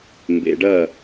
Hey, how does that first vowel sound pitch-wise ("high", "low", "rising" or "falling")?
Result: low